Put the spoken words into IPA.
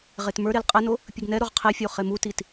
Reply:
ʁ e t m ə˞ ɾ e l qʼ ɛ n o | pʲ ɨ ɡ n ɛ ɾ o ʁ qʰ e fʲ o χ e m u t i t

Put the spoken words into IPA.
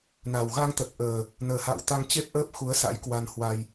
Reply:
n a˨˩ w ɣ a˧ ŋ t̪ ə˨˩ t̚ ʔ əː˨˩ | n əː˨˩ h a̰ː˧˨ w t̪ a˧ ŋ t͡ɕ e˦˥ p̚ ʔ əː˦˥ p̚ x u˨˦ ə̯ s a̰˧˥ j k w a˧ n h w a˧ j

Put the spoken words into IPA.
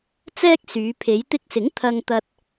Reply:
t͡s ɛː˥ k̚ s yː˨˧ pʰ e˨˧ j t̪ ɪ˧ k̚ s ɪ˨˥ ŋ t̪ʰ ɐ˧ ŋ t̪ ɐ˧ t̚

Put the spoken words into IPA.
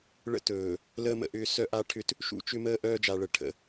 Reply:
ɭ ə̰˦ t ɵː˨ | l əː˦ m ə̰˨ ʔ ʏː˦ s œ˦ ʔ a˦ ʈʰ ʏ˦ t | ʃ ṵ˦ t͡ʃ ʏ˦ m əː˦ ʔ œː˦ d͡ʒ a˨ ɭ ə˨ ʈʰ ə̰˨˦

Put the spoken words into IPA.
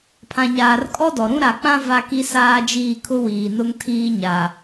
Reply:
pʰ ã˨ ɲ aː˨ r kʼ ɔ˦ d ɔ˨ ɾ ũ˦ ɾ a˨ k͡p ã˦ v a˦ k i˦ s aː˦ d͡ʒ iː˦˨ kʰ ʊ˦ w iː˨ n ʊ˦ ŋ tʰ iː˦ ɲ a˨

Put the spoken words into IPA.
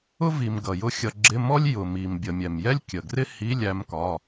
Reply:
ʊ˥ v i˨ m ɡ ʌ˨ j ʊ˥ xʲ ʌ˧˥˧ ɡ͡ǁ ɪ˧˥˧ m ɔ˥ lʲ j ʊ˨ m i˨ m bʲ ə˨ mʲ ɛ˨ m j ɛ˥ lʲ kʲ ə˨ ɡ r ɪ˥ h i˧˥˧ lʲ æ˥ m k ɒ˧˥˧

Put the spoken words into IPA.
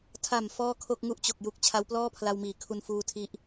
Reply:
tʰ a˨˩ m f ɔː˥˩ kʰ o˥˩ k̚ ŋ u˥˩ ʔ t͡ɕ o˨˩ k̚ j u˨˩ k̚ t͡ɕʰ a˦˥ w p l ɔː˥˩ pʰ l a˧ w m iː˩˦ kʰ u˧ n f uː˧ tʰ i˦˥ ʔ

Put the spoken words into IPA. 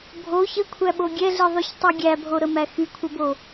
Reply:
bʱ o ç ə kʷʰ æ ɓ o ɡʲ ɛ ɮ i ðˤ y ç tˤ y ɡʲ æ bʱ o ɾ ə m æ x y kʷʰ ə b o

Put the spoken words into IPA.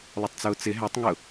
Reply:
lˠ ʊ tˤ t͡s ʊː t͡s ɪ ɦ æ tˤ ŋ ʊ

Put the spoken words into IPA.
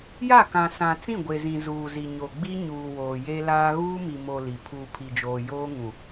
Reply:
j a˦˨ k ã˨ s ã˨ t͡s ĩ˦˨ ɡʷ e˨ z ĩ˨ z uː˨ z i˨ ɲ o˨ ɡ͡b i˦ ɲ uː˨ w oː˨ j e˦ l aː˦ ɣ uː˦ m i˨ m o˨ l i˨ pʰ uː˨ pʰ i˨ d͡ʒ oː˨ j oː˦ ŋ ũ˨

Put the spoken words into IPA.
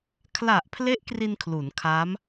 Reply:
kʰ l a˨˩ ʔ pʰ l e˦˥ ʔ k r i˧ n kʰ l u˩˦ n kʰ a˦˥ m

